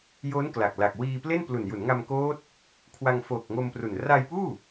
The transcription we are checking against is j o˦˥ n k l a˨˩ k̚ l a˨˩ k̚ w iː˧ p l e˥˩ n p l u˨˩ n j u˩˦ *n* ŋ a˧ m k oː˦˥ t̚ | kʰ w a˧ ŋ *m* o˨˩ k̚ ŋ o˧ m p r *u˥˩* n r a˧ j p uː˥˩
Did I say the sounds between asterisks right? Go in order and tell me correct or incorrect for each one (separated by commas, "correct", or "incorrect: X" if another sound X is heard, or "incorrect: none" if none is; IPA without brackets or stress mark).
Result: correct, incorrect: f, incorrect: u˨˩